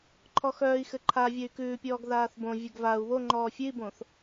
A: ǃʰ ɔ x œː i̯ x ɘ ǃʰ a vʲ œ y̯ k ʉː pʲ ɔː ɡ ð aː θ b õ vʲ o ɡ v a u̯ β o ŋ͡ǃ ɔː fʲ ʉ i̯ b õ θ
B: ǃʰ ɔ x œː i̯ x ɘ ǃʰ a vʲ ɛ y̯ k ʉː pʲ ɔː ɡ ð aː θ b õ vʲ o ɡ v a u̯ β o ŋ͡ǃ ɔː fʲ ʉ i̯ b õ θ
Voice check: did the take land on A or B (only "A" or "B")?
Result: A